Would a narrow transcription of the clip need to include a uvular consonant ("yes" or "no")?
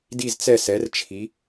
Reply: no